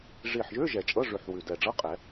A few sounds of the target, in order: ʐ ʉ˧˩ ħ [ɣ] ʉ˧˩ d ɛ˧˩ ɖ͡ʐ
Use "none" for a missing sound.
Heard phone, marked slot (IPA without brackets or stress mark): w